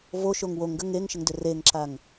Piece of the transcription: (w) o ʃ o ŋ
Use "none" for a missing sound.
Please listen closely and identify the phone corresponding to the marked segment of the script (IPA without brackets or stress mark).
v